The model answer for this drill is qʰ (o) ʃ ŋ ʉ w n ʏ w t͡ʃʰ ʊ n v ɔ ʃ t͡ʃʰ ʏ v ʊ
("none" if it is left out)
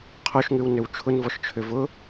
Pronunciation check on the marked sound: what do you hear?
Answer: o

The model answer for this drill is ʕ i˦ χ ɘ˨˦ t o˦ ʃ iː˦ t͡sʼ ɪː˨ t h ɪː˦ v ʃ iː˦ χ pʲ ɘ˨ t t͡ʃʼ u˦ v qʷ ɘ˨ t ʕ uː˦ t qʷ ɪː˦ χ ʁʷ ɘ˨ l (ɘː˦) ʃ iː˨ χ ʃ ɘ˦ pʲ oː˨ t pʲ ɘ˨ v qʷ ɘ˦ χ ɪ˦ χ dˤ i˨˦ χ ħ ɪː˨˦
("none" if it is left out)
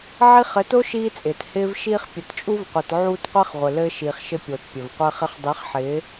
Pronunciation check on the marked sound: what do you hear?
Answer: ɘː˦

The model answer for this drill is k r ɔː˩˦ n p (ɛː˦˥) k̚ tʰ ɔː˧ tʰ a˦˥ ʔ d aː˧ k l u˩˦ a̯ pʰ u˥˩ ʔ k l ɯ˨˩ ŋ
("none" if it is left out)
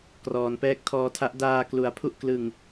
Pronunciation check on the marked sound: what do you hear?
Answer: ɛː˦˥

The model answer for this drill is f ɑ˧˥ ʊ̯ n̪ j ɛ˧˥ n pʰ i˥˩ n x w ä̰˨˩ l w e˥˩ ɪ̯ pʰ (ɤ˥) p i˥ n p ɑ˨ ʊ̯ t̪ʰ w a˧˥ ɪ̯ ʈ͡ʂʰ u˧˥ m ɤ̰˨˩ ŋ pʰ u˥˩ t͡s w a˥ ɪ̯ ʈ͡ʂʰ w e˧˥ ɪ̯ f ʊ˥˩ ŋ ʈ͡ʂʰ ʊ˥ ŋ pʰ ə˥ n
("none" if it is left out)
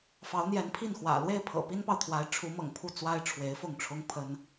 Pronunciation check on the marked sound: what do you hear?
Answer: ɤ̰˨˩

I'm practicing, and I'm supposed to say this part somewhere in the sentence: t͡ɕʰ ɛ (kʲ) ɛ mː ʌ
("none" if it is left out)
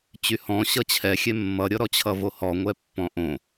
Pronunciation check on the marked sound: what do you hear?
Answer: xʲ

